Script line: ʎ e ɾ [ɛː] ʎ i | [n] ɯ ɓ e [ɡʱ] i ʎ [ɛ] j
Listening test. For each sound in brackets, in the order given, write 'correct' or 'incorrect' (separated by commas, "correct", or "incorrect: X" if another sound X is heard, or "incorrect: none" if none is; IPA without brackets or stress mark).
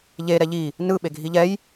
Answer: incorrect: ɛ, correct, correct, correct